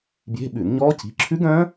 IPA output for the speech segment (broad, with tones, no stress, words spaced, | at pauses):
bje̤˧˥˧ɓʉ˧˩˧nɲɔː˦˥ci̤˨˥ ǁʰʉ˦˥ɡœ̃˦˥